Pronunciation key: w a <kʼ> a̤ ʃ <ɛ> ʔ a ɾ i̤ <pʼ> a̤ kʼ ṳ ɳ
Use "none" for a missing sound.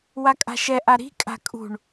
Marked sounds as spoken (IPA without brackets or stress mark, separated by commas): kʼ, ɛ, kʼ